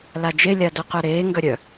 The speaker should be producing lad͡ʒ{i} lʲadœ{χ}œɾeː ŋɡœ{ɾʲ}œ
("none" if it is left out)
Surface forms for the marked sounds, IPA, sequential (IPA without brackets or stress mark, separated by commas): e, q, ɾʲ